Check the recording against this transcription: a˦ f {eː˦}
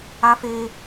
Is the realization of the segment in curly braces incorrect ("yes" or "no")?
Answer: no